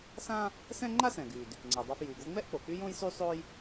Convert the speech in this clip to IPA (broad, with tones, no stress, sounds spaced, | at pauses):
s ã˥ | s ɛ̃˥ ŋ͡ǃ a˥ s ɛ̃˩ ɡ y˩ d | ŋ͡ǀ ɛ˩ dˤ a˧ f j y˩ ɡ o˧ ŋ͡m ɛ˥ ʔ k͡p o˩ k͡p y˥ j õ˥ j s y˥ sˤ o˥ j